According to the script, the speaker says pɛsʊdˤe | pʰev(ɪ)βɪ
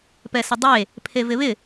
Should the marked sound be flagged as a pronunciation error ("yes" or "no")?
no